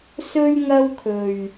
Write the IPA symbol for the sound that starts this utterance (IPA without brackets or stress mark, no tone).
s